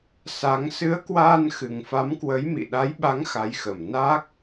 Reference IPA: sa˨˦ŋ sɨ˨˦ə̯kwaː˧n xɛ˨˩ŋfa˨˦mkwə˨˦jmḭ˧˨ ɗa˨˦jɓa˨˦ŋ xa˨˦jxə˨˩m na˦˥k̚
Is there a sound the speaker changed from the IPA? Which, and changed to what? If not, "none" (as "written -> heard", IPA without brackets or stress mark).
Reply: ɛ˨˩ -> ɨ˨˩